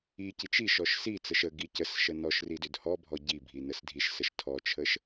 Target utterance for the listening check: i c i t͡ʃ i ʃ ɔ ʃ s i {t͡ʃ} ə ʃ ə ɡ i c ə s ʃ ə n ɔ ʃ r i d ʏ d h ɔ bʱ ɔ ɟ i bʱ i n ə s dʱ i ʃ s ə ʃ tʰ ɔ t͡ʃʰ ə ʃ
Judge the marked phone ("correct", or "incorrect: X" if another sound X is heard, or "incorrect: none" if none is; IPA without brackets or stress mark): incorrect: t͡s